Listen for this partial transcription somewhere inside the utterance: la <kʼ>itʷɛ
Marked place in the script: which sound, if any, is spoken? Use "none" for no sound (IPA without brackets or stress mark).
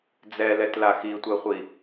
x